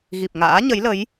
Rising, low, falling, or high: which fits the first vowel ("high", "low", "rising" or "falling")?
low